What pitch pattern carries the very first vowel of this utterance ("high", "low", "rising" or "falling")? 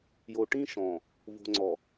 low